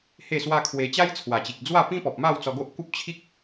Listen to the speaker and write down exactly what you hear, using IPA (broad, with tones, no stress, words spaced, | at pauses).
he˥˧swa˦kʰwe˧ t͡ɕa˦jt͡sʰwa˨˩t͡ɕi˨k̚ d͡zwa˥˧pĩ˦pɔ˨p̚ ma˥˧w t͡sɔ˧ɡo˦ʔku˦p̚ t͡ɕʰi˦k̚